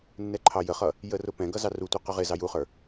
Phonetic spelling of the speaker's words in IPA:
nː ɛ ǃʰ ɑ j ə χ ʌ | j ə r ʊ p ɛ̃ ɡ ʌ z ɑ r u tʷ i q ʊ ʁ ɪ z ɑ j u χ ə˞

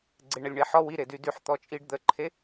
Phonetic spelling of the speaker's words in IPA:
ɡ͡ǀ e ɳ ə lʲ ɳ e ħ ɔ w i ɾ e d y d y ħ t̪ ɔ t͡ʃʼ i ɖ d̪ ə ǃʰ e

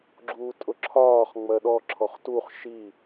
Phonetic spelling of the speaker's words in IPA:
ɡ͡ǁ uː tʼ ʊ ǁʰ ɒː χ ŋ͡m ɜ ɗ ɔ ǁʰ ɔ χ t u χ ʃ i

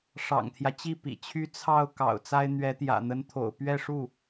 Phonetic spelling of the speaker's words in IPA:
ʂ ɑ̰˨˩ ŋ t̪ʰ j ä˦ t͡ɕ i˥˩ p ḭ˨˩ t͡ɕʰ y˥ t͡sʰ ɑ˥˩ ʊ̯ k ɑ̰˨˩ ʊ̯ t͡s a˥ ɪ̯ n̪ ɥ ɛ˧˥ t̪ j ä̰˨˩ n̪ ə˧˥ n t̪ʰ o̰˨˩ ʊ̯ p ɥ ɛ˥˧ ʂ u˥˩

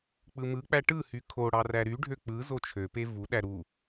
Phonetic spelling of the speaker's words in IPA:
k͡p ɯ m ɯ k͡p æ ʈ ɯ h y kʰ o ɽ ɑ r æ ɾ y ɖʱ ø k͡p ɯ z o t͡ʃʰ ø p e v u ɗ æ ɾ u

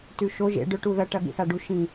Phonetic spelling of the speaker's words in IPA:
t ʉ ʃ o ʒ ḛ ɖ ɵ ʈ u ð ɐ ʈ ɐ ɠ ḭ θ a ɖ u ʃ ĩ

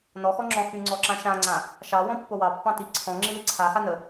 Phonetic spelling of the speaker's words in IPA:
n ɔ x ɔ ŋ͡ǁ ɔ̃ x y ŋ͡ǀ ɔ ǁ ã ʃ ã ŋ͡ǀ ã | ʃ ɑ w ɔ̃ pː o w ɑ pː ɑ̃ t i ǀʰ ɔ̃ ŋ͡ǁ i l i ǀʰ a x a n ə

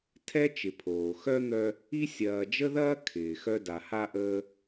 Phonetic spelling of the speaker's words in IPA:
tʰ ɛ˥ t͡ʃ ɪ˨ pʰ oː˩ x œ˥ n̪ œ˦ | i˥ sʲ ɐː˨ d͡ʒ ə˥ ð ɐː˥ kʰ ɪː˩ x œ˦ d a˨ h a˦ ʔ əː˦

